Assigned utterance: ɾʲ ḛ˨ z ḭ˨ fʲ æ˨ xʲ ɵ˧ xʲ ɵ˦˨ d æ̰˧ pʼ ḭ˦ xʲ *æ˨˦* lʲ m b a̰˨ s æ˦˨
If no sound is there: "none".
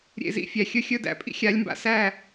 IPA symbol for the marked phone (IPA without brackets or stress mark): a˨˦